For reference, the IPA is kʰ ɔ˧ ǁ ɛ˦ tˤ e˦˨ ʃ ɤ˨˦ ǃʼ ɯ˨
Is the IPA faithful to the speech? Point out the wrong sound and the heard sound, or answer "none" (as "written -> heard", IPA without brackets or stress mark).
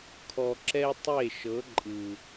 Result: none